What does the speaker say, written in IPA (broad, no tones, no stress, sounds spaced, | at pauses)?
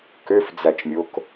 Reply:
k ø f d͡z æ t͡ʃ mʲ o k